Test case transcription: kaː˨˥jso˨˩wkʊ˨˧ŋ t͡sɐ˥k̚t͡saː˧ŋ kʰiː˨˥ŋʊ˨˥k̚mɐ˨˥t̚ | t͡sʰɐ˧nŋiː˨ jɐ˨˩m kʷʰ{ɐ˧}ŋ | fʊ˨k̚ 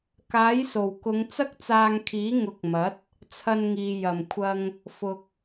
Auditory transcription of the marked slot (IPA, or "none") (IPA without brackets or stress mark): ɐ˧